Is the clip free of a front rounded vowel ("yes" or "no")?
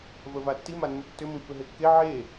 no